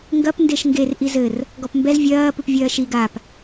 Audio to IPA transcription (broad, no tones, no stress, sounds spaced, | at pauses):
ŋ ɡ ɐ p n d e ʃ ŋ ɡ e r ʔ i z ɘ r | ɡ ɔ p m b ɛ z vʲ ɐː p ɨ p vʲ ɐː ʃ i ɡ a p